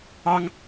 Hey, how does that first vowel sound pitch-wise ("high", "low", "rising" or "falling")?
high